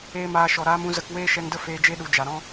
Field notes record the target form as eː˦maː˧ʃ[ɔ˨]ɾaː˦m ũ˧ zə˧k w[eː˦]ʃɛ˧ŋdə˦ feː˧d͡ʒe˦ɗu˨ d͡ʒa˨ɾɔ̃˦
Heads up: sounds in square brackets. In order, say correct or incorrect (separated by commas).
correct, correct